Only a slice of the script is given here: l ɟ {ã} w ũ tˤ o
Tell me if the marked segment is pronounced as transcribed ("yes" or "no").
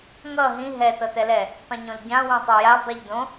yes